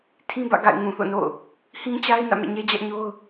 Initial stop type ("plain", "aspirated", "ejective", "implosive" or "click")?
aspirated